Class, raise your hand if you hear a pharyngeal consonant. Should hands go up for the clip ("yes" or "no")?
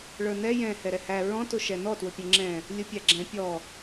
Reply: no